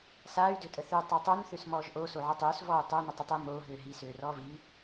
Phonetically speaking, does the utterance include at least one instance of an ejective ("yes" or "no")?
yes